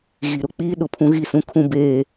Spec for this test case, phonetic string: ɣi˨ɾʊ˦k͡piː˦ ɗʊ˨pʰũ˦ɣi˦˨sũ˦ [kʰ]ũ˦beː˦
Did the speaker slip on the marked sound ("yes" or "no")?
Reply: no